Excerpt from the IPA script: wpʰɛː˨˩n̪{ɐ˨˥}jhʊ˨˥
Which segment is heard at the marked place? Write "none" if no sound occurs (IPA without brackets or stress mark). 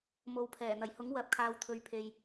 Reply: ɐ˨˩